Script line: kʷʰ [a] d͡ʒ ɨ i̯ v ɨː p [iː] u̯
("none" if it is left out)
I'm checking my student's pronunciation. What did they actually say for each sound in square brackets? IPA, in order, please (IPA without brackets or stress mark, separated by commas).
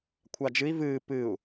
a, ɨː